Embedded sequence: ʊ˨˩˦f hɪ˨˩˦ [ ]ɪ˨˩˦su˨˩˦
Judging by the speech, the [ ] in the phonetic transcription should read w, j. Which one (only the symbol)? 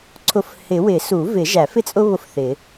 w